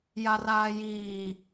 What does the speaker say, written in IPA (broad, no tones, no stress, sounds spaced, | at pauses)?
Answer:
j a r aː j iː